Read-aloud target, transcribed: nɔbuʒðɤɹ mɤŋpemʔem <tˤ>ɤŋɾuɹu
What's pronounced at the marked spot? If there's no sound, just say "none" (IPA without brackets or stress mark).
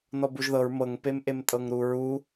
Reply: tʼ